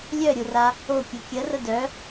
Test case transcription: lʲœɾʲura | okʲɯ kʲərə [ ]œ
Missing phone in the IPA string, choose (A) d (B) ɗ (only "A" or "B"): A